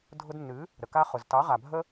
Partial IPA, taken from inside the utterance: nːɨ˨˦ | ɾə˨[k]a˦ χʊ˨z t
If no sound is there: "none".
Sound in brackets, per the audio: k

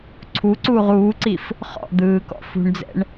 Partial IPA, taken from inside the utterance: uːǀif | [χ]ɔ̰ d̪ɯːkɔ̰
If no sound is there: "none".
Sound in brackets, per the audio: χ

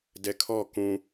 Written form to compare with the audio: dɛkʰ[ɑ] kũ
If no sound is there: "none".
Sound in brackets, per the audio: ɔ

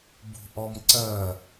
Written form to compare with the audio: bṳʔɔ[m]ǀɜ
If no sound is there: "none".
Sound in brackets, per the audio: m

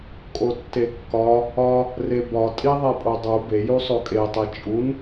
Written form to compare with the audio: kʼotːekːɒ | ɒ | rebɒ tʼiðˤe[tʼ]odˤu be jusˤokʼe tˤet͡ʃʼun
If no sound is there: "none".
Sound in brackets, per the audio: pʼ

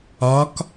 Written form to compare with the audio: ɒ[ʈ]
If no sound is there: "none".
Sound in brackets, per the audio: k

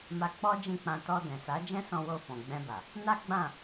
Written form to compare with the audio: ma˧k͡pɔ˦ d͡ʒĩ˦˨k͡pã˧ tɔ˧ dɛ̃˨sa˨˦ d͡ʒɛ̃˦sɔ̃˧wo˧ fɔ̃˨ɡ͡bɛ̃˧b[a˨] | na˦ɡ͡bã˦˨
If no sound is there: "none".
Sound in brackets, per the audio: a˨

